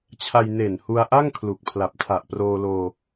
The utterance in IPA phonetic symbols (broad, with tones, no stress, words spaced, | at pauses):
t͡ɕʰa˧jne˨˩nhu˧a̯ʔa˥˩ŋ kʰlu˨˩k̚ pʰla˨˩p̚tʰa˨˩ʔproː˧loː˧